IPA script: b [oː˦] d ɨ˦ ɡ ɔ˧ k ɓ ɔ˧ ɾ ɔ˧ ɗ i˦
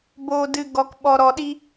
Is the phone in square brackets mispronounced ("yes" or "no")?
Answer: no